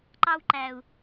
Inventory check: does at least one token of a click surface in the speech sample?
yes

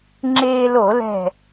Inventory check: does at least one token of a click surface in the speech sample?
yes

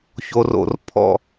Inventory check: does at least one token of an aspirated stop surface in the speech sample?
yes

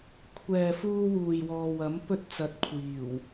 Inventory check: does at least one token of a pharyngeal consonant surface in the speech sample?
no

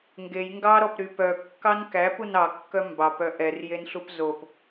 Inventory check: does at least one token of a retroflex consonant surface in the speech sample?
no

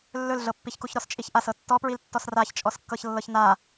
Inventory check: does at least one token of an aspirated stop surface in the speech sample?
no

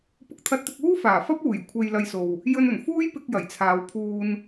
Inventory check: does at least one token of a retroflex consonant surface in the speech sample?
no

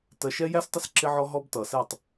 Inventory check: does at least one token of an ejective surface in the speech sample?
no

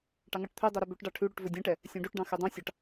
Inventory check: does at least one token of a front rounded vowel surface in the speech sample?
yes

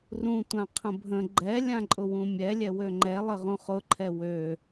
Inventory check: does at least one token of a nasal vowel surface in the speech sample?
yes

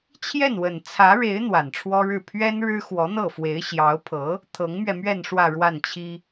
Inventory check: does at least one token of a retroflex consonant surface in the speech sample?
yes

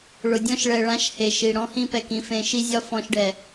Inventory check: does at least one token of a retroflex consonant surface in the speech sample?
yes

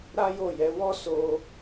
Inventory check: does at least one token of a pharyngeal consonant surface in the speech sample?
no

